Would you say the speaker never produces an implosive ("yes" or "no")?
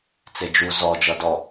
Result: yes